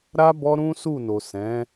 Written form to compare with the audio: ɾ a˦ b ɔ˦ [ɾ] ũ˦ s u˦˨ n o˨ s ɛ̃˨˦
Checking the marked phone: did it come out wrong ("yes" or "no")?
no